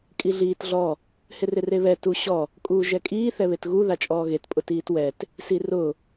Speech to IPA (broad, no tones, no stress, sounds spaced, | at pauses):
kʼ i ɮ iː t ɮ ɔ | h ɪ r ɪ r e β ɛ t u ɕ ɔ | kʼ uː ʒ ɛ kʼ iː θ ɛ β e t ɣ u ð a t͡ʃʼ ɔː ɣ e t pʼ ʊ t iː t w ɛ t | s i r ʊ